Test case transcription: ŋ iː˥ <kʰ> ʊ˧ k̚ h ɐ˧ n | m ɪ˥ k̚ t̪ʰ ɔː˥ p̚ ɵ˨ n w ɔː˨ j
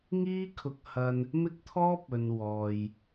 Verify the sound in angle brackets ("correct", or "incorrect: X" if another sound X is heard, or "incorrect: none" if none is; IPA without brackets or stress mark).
correct